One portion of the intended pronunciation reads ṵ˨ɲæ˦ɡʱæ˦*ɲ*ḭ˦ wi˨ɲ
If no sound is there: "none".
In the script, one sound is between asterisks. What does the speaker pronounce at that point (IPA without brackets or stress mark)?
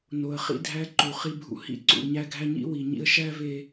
ɲ